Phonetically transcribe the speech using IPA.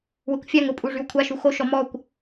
wəkʷfʲaŋ ʊpʼu ʐywkʷʰaʃu xoʃɔ mɔkʷ

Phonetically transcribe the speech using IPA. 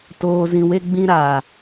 toː˨zĩ˨we˧ɡ͡bĩ˧ ɾaː˨

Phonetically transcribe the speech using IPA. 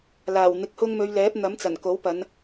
laː˨˩wn̪ɪ˧k̚hʊ˥ŋ mɵ˨˧ɥlɛː˨˥p̚n̪ɐ˨˥mt͡sɐ˨˩n ko˨˥wpɐ˨˧n

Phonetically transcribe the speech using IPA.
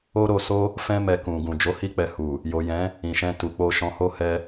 o˧ɾo˨so˧ | fɛ̃˧mɛ˨ kũ˨ ɡũ˨ d͡ʒo˨˦hi˧k͡pɛ˨ hu˨ | jo˨jɛ̃˨˦ | ĩ˨ʃɛ̃˧ tu˨k͡po˧ ʃɔ̃˧ho˦ hɛ˧

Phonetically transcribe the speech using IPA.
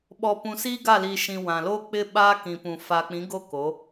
ɓɔ˨pũ˨siː˦ ɡa˦˨li˨ʃĩ˨ wã˨ lo˦k͡pɪ˦ ɓaː˦kĩ˨pũ˨ fa˨k͡pĩ˨˦ɡo˦ ko˨˦

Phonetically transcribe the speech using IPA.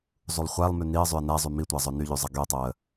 zˤulˠχʷælˠmy niə̯zˤyə̯ næ zˤymitʷæ zˤɵnyʎy zˤɑɡyə̯tˤoə̯

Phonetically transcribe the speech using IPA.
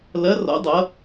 lɐ˧˥rɔ̰˧˥ dˤʌ˧˥

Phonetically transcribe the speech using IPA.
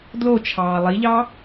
dlot͡ʃʰɑː lˠiʎɑ

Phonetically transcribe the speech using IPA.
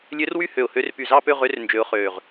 lʲø˧˥rwy˥˧ hø˧˩ʊ̯hø˧˥r py˧˩zɑ˥˧pø˥˧ʁø˧˥r nd͡ʒø˧˥ʊ̯χøː˧˩ʁ

